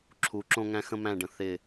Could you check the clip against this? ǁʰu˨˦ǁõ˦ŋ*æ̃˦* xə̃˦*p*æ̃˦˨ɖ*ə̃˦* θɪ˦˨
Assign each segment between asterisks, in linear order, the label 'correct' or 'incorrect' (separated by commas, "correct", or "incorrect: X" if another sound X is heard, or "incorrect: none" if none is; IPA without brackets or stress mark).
correct, incorrect: m, incorrect: ə̃˨